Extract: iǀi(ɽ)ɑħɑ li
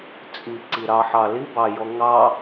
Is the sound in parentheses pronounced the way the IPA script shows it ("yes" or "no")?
no